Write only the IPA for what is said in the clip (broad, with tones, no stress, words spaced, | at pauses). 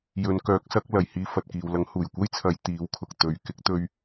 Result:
jɵ˨˧n kœː˨˥k̚sɐ˨˥k̚ lɐ˨jhiː˧ fɐ˨t̚kiː˨wlɐ˨˥ŋ huː˨˩jkʷɐ˥jt͡sʰɐ˨˧j t̪iː˨˥wkʰʊ˨k̚ t̪ɵ˨ɥ kɪ˧k̚t̪ɵ˧ɥ